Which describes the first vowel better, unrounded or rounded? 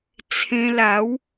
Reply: unrounded